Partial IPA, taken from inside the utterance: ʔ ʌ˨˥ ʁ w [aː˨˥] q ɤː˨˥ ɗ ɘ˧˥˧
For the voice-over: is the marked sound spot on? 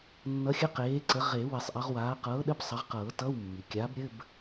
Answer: yes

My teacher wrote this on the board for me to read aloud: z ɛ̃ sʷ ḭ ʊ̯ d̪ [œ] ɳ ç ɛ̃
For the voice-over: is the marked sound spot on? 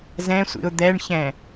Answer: no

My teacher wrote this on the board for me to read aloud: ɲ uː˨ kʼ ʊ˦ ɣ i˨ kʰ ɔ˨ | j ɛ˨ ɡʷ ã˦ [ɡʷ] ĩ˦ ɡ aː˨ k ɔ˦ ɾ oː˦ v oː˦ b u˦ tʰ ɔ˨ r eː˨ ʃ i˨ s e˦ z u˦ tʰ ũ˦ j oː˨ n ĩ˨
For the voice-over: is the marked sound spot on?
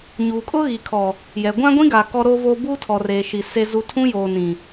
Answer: yes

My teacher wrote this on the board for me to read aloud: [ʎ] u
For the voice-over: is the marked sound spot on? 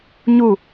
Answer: no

